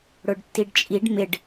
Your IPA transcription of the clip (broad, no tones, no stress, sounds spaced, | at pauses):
ɽ ʊ ɖ tː i ɖ t͡ʃʼ i ɖ m ɪ ɖ